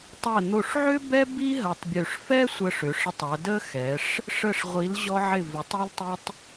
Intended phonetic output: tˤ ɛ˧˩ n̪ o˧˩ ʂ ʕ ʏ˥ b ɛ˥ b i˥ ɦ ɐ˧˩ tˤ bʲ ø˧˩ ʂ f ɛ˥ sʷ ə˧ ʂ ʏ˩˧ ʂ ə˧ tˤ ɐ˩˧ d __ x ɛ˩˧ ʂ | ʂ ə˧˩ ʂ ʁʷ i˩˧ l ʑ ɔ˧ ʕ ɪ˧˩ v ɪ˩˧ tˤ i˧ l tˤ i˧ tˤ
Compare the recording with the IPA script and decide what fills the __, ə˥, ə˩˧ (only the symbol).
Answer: ə˥